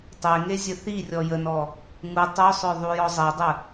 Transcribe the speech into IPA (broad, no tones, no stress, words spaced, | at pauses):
tˤe ŋezʲəθirʲɔ jənɔ | ŋu tˤœsˤœ ðˤujɔzˤedˤə